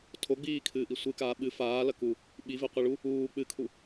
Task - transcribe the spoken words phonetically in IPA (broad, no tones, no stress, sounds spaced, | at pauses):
tʰ o ɡ͡b iː kʰ ɨː ʔ i sʷ ɨ k aː ɓ ɨ f aː l ɐ k u | ɓ i v e qʷ ɨ ɭ u | uː k͡p ɨ kʰ u